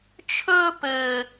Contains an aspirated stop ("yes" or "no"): yes